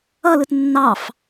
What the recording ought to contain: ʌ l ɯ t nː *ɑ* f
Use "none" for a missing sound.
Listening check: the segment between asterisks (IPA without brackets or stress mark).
ɑ